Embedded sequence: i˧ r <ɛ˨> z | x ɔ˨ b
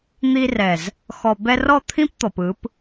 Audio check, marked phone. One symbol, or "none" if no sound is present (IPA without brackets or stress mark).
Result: ɛ˨